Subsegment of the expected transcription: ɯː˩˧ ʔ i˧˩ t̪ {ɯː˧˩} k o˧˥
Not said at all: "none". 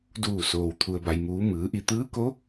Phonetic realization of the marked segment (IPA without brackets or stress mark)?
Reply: ɯː˧˥